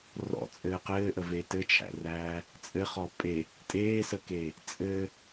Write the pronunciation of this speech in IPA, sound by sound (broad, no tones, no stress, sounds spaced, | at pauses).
r ɔ̰ t͡sʼ ɘː q ɘː ʔ ə v e t ɘ t͡ʃʰ æ̰ r æː | t͡sʼ ɘ χ ɔ pʼ e | tʼ eː s ə k e | t͡sʼ ɘ